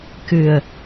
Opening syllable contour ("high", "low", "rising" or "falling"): low